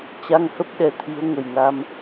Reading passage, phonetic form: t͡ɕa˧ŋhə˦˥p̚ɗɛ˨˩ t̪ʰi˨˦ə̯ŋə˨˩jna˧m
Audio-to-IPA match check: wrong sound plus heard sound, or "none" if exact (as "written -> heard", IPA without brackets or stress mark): none